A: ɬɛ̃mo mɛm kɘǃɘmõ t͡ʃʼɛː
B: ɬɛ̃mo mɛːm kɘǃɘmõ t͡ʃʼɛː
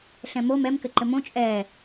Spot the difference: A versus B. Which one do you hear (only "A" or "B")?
A